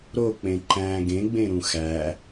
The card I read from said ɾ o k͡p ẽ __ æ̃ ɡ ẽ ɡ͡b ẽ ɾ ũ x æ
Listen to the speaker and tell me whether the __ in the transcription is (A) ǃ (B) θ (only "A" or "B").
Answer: A